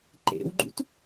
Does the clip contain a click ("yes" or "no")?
yes